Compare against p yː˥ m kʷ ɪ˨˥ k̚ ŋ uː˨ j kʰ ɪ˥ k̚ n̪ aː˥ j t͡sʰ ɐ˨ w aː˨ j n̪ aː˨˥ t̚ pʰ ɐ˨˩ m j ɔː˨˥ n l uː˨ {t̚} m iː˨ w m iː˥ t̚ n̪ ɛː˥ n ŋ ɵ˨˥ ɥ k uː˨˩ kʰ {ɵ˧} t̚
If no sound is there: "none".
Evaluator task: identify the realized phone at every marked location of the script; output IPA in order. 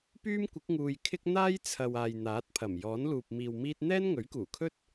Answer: p̚, ɵ˥

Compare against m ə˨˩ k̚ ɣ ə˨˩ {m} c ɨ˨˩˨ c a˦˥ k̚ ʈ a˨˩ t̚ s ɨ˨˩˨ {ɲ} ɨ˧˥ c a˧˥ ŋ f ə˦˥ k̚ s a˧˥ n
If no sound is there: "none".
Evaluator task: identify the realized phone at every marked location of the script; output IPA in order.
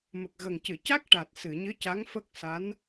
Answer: ŋ, ɲ

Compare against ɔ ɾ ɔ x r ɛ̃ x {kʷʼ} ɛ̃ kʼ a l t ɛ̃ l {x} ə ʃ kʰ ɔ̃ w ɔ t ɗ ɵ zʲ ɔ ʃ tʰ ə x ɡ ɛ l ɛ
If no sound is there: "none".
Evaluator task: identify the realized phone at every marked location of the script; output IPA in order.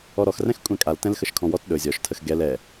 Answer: kʷʼ, x

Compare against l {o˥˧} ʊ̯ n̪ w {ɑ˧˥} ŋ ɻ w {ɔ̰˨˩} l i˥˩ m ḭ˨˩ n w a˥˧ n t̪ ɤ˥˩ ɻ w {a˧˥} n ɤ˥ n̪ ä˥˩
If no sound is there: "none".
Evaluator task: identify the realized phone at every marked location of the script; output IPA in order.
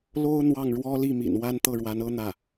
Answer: o˥, ɑ˥˩, ɔ˥, a˧˥

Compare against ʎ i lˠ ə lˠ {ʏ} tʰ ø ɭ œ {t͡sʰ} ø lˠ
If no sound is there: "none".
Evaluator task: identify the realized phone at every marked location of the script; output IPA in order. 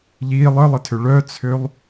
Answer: ɪ, t͡sʰ

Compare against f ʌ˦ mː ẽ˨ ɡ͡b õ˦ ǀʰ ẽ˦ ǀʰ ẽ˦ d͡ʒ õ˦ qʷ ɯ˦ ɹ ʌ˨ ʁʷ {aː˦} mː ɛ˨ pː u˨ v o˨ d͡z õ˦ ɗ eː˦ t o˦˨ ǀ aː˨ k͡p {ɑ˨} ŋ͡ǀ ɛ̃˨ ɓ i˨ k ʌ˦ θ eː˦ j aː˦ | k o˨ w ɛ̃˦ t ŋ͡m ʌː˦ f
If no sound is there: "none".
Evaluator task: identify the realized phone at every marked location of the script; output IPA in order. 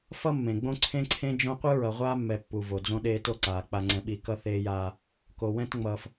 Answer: aː˦, a˨

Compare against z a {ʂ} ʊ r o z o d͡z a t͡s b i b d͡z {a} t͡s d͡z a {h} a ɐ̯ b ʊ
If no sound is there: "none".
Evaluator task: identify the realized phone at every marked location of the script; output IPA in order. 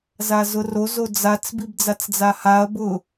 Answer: z, a, h

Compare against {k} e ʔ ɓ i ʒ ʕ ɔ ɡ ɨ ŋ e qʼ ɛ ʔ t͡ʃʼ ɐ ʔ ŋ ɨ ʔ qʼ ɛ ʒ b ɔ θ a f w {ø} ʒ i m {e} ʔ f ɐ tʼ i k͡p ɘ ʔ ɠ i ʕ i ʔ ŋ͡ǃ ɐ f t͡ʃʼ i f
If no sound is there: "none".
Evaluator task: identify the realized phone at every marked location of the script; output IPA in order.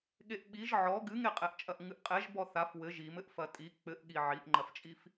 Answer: ɠ, ɘ, ɘ

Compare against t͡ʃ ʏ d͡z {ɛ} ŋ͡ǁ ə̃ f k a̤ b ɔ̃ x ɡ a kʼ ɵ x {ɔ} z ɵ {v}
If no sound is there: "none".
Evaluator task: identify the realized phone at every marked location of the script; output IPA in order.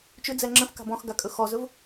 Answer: ɛ, ɔ, v

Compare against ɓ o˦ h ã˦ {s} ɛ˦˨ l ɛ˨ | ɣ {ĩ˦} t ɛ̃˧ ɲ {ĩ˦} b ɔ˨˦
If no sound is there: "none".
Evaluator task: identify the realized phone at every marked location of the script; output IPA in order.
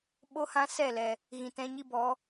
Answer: s, ĩ˨, i˦

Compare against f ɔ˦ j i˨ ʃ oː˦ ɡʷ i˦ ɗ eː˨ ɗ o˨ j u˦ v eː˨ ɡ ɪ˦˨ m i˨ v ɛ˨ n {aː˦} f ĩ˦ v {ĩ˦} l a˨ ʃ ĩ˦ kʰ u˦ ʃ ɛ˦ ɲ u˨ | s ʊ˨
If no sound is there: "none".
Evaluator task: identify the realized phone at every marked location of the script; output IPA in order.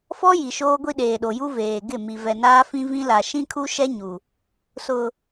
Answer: aː˦, ĩ˦

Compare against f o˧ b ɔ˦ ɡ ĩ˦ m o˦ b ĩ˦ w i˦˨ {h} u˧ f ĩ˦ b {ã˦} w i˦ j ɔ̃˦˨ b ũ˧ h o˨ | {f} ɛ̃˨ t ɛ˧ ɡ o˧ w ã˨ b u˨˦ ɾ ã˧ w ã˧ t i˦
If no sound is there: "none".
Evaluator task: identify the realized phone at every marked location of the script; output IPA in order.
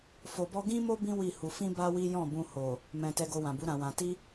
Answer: h, a˦, m

